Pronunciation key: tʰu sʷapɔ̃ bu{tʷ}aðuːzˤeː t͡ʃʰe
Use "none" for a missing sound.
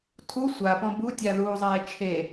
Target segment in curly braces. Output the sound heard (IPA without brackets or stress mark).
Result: tʲ